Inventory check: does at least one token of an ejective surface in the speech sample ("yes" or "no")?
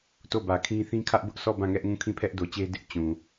no